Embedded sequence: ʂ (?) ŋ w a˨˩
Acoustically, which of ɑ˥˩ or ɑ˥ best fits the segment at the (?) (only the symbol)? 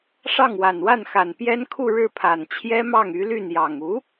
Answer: ɑ˥˩